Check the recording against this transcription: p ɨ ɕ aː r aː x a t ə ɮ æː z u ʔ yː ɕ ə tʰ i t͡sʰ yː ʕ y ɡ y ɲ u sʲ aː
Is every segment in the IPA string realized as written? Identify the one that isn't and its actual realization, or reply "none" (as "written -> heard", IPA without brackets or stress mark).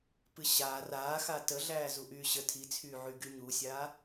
none